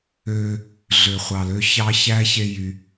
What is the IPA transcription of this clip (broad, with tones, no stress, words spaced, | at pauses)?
øː˦ | ɮø˨χʷɑ˨lø˧ çɑ˧çæ˧çe˧ jy˧